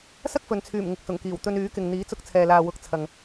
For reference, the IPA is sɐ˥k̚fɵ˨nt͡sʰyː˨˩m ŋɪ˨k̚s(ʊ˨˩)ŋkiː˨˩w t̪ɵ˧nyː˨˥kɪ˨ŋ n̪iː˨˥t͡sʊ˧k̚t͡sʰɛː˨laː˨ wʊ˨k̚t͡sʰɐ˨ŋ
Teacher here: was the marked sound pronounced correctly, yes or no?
yes